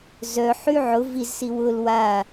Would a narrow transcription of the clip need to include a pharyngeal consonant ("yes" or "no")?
yes